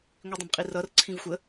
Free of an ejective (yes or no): no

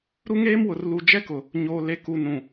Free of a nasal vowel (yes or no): no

